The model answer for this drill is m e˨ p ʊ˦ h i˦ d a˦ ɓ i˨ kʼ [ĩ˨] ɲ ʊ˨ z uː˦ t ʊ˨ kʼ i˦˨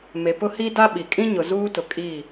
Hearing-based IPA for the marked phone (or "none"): ĩ˦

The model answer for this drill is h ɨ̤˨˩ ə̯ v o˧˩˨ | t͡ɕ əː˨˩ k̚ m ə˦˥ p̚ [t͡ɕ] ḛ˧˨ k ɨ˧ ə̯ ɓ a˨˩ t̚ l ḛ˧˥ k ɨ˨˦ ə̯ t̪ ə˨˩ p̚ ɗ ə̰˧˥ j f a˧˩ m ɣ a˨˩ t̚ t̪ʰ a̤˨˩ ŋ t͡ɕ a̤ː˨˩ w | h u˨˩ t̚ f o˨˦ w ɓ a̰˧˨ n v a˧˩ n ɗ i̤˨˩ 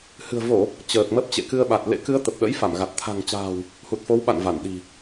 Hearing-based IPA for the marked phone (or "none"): t͡ɕ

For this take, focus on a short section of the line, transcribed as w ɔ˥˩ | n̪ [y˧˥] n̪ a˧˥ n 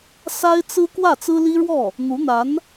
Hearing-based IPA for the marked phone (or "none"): u˧˥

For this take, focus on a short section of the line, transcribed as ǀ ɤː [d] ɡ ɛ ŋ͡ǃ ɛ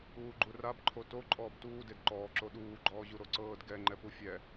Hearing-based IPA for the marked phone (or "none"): d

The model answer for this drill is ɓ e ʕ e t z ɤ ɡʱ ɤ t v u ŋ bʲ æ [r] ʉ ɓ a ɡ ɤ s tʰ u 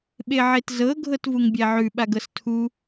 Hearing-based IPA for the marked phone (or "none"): ʕ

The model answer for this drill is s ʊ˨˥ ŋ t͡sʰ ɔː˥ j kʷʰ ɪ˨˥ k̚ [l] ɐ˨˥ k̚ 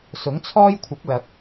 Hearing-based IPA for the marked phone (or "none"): l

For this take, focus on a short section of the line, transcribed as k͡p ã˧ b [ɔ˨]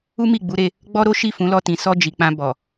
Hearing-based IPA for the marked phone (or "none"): ɔ˨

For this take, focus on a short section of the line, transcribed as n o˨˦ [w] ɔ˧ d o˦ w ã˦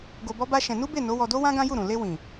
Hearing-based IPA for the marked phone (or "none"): w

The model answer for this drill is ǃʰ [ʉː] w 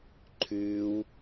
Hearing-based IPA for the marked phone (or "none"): ʉː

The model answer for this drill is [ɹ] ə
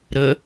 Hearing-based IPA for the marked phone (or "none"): ɾ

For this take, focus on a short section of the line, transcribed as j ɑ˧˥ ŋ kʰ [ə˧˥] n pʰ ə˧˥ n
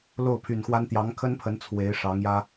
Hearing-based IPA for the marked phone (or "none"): ə˥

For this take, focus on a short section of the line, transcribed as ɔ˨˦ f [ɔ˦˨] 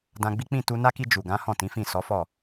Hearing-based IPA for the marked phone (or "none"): ɔ˦˨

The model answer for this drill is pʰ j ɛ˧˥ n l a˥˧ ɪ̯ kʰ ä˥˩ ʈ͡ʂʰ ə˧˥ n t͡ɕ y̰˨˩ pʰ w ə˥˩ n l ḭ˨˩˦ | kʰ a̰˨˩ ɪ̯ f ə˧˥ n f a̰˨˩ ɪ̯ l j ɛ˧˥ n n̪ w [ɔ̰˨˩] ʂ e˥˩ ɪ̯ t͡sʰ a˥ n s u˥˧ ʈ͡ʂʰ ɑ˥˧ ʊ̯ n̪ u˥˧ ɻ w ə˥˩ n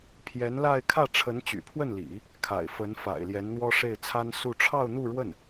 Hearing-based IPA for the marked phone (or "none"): ɔ˥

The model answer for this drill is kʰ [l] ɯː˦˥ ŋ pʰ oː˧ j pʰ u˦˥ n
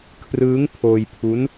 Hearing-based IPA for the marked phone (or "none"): r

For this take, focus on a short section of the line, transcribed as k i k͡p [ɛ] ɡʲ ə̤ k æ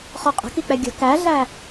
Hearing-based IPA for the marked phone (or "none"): ɛ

